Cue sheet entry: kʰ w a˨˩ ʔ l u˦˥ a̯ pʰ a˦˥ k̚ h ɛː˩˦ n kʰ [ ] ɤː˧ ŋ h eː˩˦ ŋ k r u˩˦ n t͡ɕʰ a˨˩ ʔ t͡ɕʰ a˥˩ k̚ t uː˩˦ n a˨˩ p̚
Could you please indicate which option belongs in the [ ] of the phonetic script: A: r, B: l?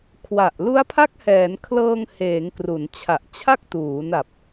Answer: B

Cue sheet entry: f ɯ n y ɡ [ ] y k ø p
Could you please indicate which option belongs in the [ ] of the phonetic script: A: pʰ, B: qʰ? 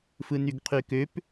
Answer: B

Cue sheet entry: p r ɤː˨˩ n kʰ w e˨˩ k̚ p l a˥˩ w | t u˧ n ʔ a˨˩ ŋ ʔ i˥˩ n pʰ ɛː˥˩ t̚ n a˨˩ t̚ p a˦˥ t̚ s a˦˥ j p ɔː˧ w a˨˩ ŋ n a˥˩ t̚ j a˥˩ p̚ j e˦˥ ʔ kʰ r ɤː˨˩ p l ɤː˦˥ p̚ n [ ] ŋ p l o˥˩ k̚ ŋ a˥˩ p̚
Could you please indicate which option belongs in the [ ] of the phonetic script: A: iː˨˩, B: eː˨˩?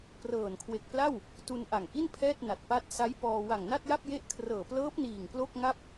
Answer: A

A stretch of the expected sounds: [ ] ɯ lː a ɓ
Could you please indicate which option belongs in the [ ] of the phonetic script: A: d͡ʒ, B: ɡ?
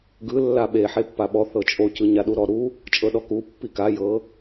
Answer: B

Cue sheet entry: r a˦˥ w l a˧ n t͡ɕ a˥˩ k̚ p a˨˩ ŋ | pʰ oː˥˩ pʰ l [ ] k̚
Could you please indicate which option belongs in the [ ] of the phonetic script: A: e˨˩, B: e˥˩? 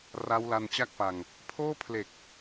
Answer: A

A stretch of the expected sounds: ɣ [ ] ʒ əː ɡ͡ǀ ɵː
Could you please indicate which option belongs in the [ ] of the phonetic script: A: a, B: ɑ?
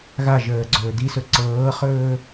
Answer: A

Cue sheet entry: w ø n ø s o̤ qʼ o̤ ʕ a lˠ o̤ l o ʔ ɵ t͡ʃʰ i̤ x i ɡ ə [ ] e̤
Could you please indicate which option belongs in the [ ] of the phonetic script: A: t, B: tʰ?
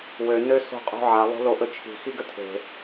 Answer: B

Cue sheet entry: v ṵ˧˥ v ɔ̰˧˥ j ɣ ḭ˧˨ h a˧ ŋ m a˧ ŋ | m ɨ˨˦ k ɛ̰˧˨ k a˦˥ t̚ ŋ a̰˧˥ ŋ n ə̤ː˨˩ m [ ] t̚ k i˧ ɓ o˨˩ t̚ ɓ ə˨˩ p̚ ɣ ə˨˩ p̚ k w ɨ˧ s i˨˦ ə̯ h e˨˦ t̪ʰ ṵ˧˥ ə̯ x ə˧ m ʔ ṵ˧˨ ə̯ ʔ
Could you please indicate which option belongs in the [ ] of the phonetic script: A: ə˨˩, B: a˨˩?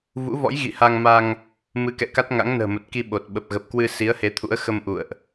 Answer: A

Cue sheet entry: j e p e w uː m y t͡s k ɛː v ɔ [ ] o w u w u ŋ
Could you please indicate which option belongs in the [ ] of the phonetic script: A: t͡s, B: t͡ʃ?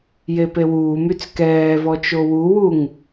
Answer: B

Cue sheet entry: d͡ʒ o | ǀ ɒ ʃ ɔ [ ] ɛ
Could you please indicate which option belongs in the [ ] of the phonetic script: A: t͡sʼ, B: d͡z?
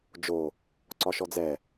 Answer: B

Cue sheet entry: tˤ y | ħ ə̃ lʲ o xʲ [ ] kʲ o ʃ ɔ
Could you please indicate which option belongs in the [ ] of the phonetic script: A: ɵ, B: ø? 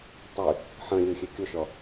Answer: B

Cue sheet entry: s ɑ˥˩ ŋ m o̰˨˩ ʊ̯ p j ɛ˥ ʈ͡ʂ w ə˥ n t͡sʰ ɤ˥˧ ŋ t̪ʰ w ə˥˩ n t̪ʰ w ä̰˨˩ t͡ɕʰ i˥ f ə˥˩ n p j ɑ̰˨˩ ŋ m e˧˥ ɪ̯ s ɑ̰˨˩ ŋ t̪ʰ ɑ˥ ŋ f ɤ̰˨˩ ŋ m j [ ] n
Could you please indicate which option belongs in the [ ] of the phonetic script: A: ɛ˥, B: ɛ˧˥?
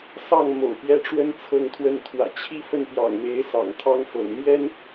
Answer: A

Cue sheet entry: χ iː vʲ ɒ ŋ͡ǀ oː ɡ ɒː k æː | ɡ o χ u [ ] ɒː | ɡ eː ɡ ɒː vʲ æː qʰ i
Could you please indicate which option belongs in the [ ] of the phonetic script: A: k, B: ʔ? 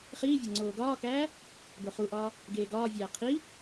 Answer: B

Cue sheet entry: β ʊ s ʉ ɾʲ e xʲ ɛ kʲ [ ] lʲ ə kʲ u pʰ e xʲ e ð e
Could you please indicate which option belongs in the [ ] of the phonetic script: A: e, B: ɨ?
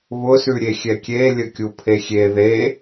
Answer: A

